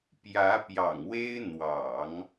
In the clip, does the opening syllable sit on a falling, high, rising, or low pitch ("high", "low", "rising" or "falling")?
rising